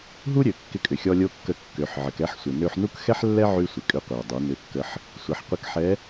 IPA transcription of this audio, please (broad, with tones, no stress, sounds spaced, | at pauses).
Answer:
ɦ u˥ ɾʲ ø˩˧ kː ɪ˧ kʼ ʏ˩ xʲ ɔ˧ lʲ o˧˥ kː ə˧ kː ø˩˧ ħ ʕ ə˩˧ k ɛ˧˥ ħ sʷ ɪ˩ n ø˧ ħ n u˥ k x ɛ˥ ħ lː ɛ˥ ʕ y˥ sʷ ɪ˩ kʼ ʏ˧˥ qʷ i˩ ə̯ dˤ y˩˧ n ʏ˧˥ kː ə˧˥ ħ | sʷ ə˩˧ ħ qʷ ɪ˧ k ħ ɛ˧˥